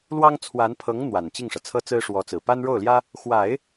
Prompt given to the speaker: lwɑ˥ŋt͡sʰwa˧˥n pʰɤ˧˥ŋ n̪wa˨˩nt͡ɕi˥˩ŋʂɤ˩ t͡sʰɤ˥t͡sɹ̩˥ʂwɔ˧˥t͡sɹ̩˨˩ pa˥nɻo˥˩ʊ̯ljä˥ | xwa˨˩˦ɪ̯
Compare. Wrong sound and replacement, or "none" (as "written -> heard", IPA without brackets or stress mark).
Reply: none